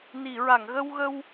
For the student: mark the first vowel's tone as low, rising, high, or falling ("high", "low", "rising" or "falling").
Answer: low